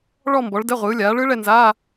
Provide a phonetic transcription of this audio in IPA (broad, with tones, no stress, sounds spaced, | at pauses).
ɭ ɔ˥˨ m b ɔ˩˥ ɭ d ɛ˧˥˧ ʁʷ ɯː˩˥ lʲ aː˩˥ ɭ ɯ˦˥ ɭ ɛ˥˨ n z aː˧˥˧